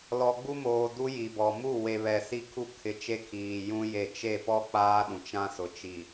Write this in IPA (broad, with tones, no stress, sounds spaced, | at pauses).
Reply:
l ɔ˨ ɡ͡b u˦ m oː˨ d u˦ j i˨ b ɔ˨ m u˦˨ w e˨ β ɛ˨ s i˦˨ kʰ u˦ kʰ ɪ˦ t͡ʃ e˦ kʰ iː˨ j ũ˦ j e˦˨ t͡ʃ e˦˨ p ɔ˦ k͡p aː˦ ɗ ũ˨ t͡ʃ ã˦ s ʊ˨ t͡ʃ i˨